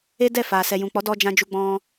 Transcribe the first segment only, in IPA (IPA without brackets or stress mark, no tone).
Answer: e